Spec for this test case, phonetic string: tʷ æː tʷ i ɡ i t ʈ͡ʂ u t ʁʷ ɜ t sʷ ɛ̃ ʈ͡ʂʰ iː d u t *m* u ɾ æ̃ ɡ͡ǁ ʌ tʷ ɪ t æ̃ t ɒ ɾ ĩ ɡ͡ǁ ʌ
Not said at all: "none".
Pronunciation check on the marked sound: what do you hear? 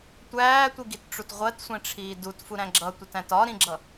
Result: f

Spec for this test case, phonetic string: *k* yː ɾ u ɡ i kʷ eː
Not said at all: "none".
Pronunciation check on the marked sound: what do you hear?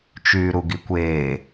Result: t͡ʃ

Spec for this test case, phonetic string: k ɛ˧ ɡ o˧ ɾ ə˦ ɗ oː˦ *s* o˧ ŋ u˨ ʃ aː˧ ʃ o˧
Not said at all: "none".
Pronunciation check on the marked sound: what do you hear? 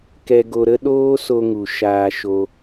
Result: s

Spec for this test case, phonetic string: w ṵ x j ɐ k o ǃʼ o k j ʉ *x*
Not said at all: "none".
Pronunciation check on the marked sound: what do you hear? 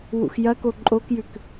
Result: k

